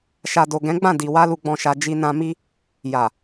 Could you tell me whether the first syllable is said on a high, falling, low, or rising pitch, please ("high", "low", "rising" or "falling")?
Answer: low